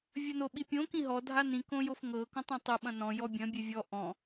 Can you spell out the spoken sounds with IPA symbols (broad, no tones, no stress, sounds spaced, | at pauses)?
vʲ ɐ n o ɓ i pʲ õ k ĩ ɦ ɔ dʱ a n ĩ k õ j o f ŋ ɤ k ɔ̃ tˤ ɛ̃ tˤ ɤ ɓ ɐ̃ n ɔ̃ j ɔ bʲ ɐ̃ bʲ ɛ vʲ ɔ ʔ ɔ̃